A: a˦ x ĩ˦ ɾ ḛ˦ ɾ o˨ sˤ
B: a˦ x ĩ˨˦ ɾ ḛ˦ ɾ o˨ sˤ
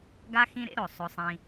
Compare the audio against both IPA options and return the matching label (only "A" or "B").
A